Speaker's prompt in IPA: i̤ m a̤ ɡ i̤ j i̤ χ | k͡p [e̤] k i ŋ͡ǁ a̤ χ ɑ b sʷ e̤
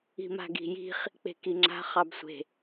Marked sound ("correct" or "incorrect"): correct